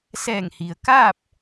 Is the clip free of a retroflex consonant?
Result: yes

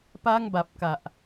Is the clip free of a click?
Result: yes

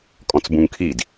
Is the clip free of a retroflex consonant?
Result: yes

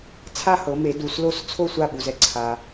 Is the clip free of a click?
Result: no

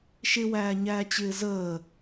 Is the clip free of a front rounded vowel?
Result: yes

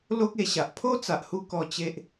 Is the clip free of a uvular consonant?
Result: yes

